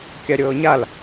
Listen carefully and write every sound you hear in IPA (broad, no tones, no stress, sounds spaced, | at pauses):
kʲ a ɾʲ ɤː ɲ a l